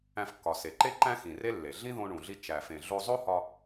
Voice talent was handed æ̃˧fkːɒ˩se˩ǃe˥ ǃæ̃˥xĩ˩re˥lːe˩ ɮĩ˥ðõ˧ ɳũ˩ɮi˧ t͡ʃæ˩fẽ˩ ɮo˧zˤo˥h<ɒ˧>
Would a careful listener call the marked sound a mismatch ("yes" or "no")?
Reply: no